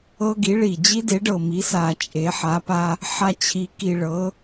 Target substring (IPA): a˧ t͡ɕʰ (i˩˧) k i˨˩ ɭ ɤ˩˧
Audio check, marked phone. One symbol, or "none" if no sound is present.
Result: i˩˧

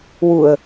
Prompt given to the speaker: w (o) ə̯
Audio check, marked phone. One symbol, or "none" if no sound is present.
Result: u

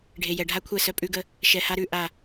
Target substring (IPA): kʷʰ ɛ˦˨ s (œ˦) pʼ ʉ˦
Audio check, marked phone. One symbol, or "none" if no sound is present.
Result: œ˦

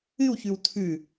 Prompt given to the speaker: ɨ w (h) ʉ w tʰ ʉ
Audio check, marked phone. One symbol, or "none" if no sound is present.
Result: ç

